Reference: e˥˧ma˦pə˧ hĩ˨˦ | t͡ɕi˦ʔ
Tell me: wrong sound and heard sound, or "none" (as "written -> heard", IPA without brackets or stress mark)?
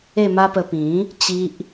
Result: h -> p